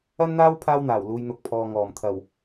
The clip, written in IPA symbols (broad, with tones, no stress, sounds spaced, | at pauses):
ɐ˥ n n̪ aː˥ w pʰ aː˧ w n̪ aː˨˩ w l uː˨˧ j n̪ ʊ˨ k̚ pʰ ɔː˨ ŋ ɔː˨˩ m t̪ʰ ɐ˨˩ w